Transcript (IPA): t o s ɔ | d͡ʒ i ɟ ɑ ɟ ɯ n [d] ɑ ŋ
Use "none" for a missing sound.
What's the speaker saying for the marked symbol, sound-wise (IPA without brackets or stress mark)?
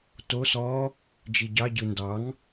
d